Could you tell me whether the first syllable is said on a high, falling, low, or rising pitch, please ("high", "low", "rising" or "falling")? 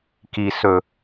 low